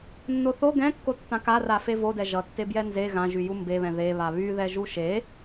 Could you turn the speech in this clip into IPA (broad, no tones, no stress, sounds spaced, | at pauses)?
nː o θ o ɡ ɛ̃ kː o tː ã k a r a f e v o d ɛ ʒ ʌ tː e b j ɛ n z e ɣ ã ʒ y j u m b e β ɛ̃ ð e β a β y ð ɛ ʒ u ʃ e